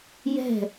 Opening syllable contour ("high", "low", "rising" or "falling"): falling